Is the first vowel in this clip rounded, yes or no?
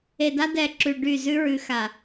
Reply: no